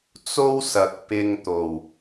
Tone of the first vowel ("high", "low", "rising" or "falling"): high